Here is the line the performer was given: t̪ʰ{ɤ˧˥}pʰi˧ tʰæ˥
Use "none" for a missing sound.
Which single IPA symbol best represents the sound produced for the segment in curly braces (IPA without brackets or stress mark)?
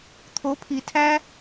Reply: o˧˥